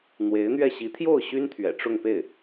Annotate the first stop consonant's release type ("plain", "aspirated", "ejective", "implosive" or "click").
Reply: aspirated